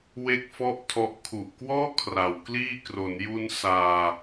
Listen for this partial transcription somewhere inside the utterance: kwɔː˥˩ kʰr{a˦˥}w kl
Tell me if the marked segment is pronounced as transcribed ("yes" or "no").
no